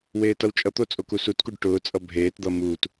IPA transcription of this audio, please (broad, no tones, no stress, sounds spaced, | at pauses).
w eː t ʌ w t͡ʃʼ ʌ t̪ o t͡sʼ o k u s u t k u ɖ ʈ ʊː t͡sʼ ʌ bʱ eː t d̪ ʌ m uː t